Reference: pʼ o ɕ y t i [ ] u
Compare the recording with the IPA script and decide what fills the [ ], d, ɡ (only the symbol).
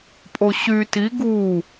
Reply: ɡ